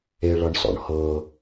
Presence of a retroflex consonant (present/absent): present